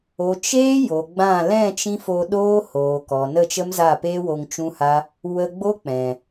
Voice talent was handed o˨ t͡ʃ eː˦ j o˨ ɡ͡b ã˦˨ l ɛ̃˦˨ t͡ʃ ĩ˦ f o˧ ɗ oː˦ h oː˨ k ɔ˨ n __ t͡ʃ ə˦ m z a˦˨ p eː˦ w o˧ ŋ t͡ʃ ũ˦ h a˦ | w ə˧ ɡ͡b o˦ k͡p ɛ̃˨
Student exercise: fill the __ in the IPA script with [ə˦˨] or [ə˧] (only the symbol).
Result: ə˦˨